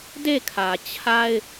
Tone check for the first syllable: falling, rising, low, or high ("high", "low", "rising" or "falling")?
falling